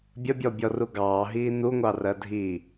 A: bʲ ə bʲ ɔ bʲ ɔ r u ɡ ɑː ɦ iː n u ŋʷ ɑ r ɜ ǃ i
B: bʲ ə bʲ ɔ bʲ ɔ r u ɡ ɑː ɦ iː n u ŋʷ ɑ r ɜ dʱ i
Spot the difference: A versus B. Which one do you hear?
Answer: B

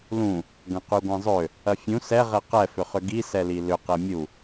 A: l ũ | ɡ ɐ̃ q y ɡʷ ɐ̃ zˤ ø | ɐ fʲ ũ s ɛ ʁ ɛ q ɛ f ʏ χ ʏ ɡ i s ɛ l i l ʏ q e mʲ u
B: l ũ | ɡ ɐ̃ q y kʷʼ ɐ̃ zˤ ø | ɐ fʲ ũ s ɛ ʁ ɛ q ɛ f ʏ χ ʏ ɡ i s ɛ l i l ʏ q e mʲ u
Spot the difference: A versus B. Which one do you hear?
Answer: A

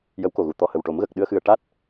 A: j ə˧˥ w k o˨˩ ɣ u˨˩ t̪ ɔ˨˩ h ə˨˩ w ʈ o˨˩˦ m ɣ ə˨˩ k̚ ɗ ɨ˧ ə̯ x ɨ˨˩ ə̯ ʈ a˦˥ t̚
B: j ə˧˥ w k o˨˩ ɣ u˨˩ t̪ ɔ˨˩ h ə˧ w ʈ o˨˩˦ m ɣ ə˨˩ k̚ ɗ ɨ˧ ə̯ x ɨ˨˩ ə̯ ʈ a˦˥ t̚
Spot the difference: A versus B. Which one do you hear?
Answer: A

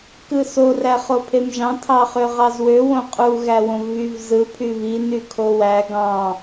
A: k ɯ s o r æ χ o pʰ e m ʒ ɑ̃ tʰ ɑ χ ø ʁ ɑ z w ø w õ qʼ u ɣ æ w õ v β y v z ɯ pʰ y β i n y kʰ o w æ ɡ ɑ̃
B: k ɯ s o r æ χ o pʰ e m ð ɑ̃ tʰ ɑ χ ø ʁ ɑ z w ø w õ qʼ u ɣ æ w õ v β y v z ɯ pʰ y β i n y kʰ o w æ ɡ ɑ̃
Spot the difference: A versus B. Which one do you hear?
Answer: A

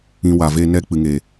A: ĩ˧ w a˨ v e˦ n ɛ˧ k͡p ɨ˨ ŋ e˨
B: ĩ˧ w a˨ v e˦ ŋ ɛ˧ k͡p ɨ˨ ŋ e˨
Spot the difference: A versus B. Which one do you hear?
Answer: A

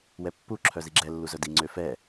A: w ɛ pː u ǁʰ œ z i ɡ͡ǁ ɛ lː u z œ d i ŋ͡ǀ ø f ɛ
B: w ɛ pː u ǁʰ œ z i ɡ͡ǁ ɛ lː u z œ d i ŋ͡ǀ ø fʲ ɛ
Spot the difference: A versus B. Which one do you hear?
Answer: A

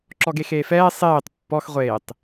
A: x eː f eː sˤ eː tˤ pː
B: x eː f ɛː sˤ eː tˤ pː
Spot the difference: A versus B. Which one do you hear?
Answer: B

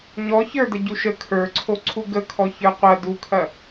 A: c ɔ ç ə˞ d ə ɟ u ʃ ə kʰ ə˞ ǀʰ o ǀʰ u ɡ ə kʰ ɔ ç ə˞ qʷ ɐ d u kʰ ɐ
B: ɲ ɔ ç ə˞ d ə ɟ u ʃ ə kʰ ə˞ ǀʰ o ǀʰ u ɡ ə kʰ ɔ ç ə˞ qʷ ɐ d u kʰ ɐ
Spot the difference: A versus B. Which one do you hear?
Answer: B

